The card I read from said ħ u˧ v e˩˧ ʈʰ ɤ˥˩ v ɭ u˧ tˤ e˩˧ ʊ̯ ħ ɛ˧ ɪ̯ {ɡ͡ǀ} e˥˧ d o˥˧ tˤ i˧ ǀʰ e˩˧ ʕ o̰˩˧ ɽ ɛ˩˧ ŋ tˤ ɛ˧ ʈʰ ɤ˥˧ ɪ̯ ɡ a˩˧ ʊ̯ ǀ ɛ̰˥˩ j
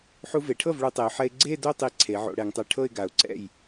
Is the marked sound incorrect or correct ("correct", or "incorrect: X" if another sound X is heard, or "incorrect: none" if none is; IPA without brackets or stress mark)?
correct